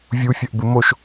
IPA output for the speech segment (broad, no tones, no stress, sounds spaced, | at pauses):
vʲ u fʲ ɐ ʔ b ɨ m o ʃ